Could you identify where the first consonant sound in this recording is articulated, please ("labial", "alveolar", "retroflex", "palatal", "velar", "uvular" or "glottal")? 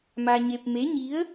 labial